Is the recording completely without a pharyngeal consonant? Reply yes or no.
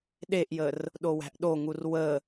yes